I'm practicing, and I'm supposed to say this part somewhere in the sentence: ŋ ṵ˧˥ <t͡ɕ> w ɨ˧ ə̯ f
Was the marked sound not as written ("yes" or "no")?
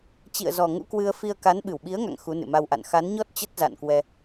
yes